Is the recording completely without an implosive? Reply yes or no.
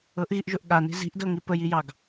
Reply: no